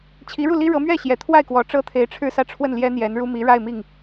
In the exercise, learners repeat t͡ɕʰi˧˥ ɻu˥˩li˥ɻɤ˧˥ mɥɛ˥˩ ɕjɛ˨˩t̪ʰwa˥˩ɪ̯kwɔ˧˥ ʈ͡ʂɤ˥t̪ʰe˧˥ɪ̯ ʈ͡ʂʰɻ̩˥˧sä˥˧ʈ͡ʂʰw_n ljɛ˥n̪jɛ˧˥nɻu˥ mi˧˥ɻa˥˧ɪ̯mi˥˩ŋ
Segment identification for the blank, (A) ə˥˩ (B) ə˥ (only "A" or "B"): A